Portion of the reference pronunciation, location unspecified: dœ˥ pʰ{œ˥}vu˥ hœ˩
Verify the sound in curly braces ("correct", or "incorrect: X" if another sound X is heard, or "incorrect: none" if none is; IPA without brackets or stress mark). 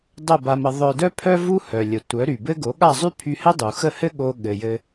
correct